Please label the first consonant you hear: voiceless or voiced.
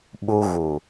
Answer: voiced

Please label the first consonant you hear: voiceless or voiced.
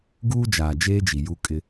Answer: voiced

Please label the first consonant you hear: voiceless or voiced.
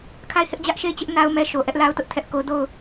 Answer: voiceless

